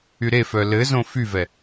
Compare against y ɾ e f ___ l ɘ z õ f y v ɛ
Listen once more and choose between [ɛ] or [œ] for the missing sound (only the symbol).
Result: œ